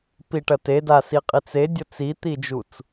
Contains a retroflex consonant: yes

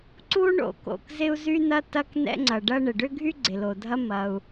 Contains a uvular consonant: no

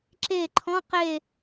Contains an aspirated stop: yes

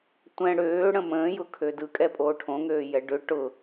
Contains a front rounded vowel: yes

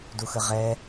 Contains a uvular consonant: yes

